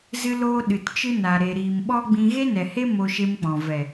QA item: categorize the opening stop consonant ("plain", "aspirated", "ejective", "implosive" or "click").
implosive